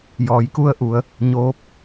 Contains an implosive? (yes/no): no